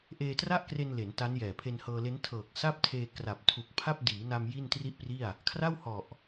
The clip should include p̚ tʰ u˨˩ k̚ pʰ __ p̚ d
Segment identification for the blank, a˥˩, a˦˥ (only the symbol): a˥˩